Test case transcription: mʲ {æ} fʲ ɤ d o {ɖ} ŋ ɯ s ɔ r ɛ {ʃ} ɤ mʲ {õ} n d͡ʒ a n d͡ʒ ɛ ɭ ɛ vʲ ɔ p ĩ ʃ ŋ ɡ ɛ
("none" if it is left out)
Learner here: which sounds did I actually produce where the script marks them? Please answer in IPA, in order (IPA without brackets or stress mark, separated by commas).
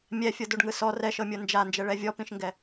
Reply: ɛ, ɖ, ʃ, o